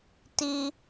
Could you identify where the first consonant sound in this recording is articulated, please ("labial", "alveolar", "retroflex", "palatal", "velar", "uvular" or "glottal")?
alveolar